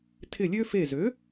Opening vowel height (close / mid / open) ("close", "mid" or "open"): close